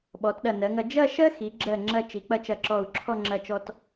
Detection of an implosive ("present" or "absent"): present